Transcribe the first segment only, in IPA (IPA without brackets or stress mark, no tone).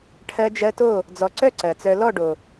ʈʰ